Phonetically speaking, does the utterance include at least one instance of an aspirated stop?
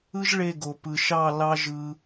no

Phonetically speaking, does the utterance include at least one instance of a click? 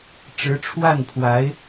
no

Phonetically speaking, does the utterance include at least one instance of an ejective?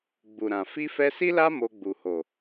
no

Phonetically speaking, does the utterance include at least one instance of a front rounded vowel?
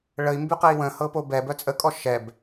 yes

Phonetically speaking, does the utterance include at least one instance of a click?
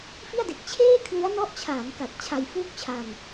no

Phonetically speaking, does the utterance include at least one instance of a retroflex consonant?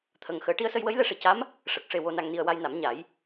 yes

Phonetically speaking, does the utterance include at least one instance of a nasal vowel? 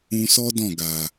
yes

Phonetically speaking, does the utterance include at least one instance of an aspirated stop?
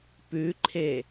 yes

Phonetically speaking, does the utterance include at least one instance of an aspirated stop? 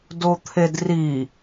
yes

